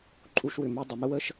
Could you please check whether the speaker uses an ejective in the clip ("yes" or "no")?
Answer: yes